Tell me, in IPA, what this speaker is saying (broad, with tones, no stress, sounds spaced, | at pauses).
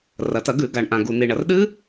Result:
r ɐ˩ t ɐ˧˩˧ ɡ ʉ˧˩˧ ɡ a˩ ɳ ʔ ã˩ ɡ u˩ n i˩ ɳ ɐ˩ r ɗ ɨ˦˥